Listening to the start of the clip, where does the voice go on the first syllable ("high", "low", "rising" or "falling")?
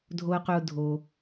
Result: high